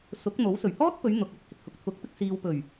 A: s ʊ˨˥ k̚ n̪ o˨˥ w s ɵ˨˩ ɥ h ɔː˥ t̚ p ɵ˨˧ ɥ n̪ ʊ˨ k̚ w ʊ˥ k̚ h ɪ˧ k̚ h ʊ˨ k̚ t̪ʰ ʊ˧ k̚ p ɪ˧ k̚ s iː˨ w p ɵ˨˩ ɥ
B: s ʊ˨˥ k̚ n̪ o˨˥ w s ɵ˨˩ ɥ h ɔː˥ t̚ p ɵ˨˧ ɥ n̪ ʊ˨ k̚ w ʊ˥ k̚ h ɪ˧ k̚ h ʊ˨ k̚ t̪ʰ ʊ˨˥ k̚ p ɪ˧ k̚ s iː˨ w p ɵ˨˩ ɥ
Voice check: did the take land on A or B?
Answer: B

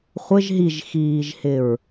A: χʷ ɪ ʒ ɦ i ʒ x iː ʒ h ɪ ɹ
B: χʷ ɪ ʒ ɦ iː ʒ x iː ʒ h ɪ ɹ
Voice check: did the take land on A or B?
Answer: A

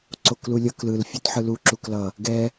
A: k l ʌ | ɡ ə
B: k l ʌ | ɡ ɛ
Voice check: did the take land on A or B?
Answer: B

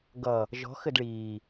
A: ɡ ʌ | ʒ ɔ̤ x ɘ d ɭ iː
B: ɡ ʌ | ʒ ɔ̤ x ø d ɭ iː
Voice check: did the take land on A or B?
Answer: A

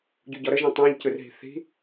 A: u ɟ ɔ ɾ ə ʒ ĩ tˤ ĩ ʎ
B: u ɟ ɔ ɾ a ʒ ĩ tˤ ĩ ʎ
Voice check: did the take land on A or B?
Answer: A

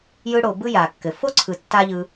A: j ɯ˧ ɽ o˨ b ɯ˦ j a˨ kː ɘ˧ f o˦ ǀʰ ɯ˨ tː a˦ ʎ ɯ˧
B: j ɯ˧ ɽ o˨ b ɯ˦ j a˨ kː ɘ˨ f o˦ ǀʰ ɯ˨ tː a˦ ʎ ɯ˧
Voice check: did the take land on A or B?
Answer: B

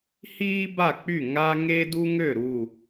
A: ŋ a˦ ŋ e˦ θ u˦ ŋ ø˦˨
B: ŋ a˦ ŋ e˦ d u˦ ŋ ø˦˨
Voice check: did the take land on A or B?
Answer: B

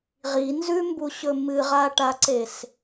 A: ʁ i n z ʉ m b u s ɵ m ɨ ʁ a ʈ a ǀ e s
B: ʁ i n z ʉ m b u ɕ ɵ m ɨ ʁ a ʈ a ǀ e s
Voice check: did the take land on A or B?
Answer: B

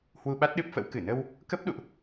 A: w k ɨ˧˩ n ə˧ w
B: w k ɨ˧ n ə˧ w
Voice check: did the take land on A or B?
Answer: A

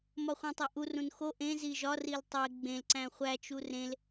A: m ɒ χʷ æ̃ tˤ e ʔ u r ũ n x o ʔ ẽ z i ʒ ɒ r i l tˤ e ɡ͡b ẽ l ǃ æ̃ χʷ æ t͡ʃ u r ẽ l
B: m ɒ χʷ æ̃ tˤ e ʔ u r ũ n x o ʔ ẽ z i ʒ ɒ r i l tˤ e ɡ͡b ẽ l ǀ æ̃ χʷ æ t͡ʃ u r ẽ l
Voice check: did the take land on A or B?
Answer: B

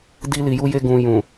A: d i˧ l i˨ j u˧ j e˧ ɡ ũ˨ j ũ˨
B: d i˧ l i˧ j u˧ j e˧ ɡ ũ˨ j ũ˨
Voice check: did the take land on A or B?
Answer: A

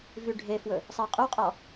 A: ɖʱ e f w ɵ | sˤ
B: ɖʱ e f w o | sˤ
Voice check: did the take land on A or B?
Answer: A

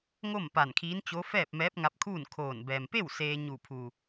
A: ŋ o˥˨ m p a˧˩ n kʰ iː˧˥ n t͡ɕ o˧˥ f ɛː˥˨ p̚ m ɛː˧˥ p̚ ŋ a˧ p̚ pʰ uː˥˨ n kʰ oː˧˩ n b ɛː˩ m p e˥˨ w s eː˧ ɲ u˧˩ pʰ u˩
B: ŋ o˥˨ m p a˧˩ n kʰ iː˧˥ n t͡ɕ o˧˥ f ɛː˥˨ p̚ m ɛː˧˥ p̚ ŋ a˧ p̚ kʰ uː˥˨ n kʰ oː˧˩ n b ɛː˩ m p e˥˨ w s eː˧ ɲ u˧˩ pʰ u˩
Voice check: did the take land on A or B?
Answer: B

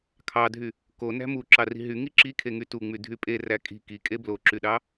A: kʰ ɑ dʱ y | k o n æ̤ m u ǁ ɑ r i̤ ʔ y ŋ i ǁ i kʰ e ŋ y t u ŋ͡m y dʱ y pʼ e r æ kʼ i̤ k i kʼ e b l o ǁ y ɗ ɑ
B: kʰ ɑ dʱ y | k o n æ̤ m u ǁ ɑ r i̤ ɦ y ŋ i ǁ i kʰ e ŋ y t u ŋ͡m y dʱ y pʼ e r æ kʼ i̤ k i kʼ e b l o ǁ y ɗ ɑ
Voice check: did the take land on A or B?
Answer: B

